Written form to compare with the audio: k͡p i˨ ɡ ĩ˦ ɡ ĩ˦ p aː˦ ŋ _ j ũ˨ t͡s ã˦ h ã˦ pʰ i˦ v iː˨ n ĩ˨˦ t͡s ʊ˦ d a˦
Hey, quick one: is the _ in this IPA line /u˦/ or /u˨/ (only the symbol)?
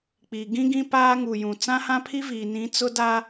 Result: u˨